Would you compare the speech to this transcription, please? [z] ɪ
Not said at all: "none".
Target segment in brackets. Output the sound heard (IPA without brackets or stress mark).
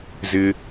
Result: z